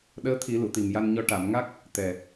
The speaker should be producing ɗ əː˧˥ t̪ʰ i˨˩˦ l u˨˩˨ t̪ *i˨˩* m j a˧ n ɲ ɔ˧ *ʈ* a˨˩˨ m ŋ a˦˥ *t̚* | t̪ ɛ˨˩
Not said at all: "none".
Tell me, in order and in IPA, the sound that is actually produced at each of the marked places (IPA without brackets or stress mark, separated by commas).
i˨˩, ʈ, k̚